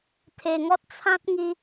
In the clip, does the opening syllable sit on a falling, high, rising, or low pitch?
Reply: low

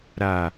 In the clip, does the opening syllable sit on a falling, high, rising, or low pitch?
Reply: low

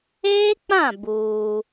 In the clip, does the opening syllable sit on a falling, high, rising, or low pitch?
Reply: high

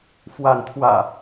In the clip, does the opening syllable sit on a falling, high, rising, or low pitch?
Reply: rising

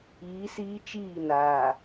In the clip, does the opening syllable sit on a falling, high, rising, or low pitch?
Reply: rising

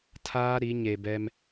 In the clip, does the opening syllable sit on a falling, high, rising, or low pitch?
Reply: high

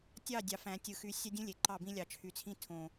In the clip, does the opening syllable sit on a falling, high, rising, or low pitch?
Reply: falling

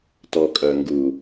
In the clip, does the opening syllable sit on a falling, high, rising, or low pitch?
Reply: low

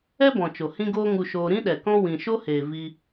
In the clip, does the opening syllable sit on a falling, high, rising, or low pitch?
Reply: high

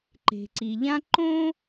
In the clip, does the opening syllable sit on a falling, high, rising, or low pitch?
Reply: low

